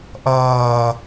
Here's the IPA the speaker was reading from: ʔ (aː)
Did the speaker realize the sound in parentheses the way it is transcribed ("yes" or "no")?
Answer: no